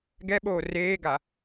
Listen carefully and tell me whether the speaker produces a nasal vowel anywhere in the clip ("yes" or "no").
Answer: no